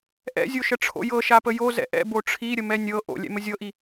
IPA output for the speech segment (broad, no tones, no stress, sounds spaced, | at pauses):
ʔ ɛ̰ zʲ o ʃ ə ʈ͡ʂʰ o̰ j ɤ ʃ a p ə j o z ɛ̰ ʔ ɛ̰ b o ʈ͡ʂʰ i ɾʲ ə m ɛ nʲ ɤ ʔ o̰ lʲ ɛ̰ m ə zʲ ɤ ʔ i